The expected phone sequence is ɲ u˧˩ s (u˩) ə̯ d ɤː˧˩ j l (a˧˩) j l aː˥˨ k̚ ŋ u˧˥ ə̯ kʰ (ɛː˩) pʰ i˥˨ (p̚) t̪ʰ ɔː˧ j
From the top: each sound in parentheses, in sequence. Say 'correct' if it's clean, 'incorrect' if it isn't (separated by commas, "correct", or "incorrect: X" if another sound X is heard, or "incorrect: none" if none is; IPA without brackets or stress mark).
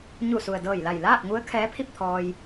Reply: correct, correct, incorrect: ɛː˧˥, correct